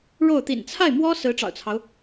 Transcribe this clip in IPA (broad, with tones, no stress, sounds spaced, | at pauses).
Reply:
ɻ o˥˩ ʊ̯ t̪ ḭ˨˩ n t͡sʰ a˥˩ ɪ̯ m w ɔ˥ s ɹ̩˧˥ ʈ͡ʂ ɑ̰˨˩ ʊ̯ t͡sʰ ɑ˦ ʊ̯